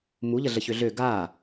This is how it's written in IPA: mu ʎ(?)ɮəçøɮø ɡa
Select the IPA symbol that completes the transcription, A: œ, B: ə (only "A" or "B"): B